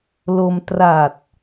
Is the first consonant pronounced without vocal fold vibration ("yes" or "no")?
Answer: no